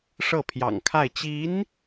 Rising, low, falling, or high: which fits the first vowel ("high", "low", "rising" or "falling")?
falling